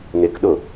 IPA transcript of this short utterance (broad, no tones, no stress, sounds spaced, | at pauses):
n̪ ɪ k ɗ ʊ